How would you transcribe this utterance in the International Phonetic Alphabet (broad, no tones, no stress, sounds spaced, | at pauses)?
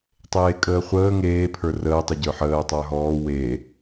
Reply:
tˤ eː kʼ əː χʷ əː ŋ eː pʰ ə˞ r əː tˤ ə ɟ ə˞ ħ əː tˤ ə˞ ɦ ɔː w e